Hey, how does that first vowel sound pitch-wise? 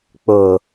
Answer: low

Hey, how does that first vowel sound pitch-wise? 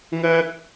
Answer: high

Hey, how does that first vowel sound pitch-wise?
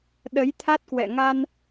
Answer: rising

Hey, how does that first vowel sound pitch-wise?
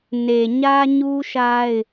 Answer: low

